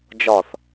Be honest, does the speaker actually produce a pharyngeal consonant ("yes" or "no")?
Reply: no